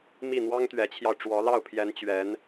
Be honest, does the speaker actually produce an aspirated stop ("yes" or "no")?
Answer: yes